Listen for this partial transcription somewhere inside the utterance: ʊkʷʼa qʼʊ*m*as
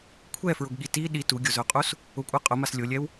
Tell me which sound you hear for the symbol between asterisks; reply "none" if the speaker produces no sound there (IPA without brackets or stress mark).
m